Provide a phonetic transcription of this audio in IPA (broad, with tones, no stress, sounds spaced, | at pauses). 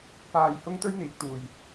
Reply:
p aː˧ j h ʊ˥ ŋ t̪ ɵ˥ ɥ n̪ iː˨˥ k̚ t̪ uː˨ j